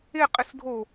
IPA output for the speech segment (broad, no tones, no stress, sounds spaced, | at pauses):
e qʼ ɪ s dʱ o